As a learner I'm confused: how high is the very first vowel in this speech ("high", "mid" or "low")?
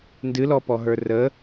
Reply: high